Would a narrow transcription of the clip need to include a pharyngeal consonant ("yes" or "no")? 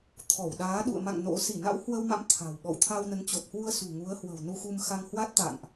no